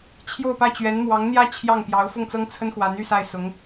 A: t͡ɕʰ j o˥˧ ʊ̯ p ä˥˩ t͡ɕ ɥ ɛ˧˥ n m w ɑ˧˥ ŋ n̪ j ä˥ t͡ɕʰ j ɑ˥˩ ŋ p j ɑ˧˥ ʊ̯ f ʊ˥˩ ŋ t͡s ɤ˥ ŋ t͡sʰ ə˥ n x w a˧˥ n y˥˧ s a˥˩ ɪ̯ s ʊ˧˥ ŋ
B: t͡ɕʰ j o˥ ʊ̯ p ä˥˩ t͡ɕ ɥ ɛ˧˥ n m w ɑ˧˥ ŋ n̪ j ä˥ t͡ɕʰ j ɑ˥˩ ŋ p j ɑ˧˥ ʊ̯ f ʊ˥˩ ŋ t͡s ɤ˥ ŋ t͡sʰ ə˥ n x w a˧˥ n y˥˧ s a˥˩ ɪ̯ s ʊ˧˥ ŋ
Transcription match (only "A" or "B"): A